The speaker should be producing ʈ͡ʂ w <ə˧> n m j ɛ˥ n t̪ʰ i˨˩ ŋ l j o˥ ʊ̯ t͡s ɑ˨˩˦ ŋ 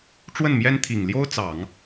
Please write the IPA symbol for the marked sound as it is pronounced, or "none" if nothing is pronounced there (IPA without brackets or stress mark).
ə˥˩